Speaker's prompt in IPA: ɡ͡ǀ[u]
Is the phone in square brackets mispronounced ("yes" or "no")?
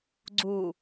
no